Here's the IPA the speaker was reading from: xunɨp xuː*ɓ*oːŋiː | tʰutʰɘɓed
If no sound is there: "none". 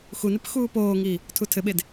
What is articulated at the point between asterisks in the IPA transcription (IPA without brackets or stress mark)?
p